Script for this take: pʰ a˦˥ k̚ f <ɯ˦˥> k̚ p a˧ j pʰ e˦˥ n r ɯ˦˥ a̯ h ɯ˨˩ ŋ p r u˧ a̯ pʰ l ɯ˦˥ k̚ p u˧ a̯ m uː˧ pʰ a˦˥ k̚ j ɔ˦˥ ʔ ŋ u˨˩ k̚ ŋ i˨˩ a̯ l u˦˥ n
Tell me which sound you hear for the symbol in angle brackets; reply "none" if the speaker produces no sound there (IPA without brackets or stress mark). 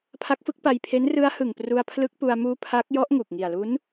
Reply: ɯ˦˥